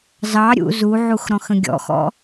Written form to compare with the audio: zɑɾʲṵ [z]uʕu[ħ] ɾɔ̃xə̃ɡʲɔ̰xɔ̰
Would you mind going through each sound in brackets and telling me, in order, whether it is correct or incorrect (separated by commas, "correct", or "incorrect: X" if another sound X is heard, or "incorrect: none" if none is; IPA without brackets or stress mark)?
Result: correct, incorrect: x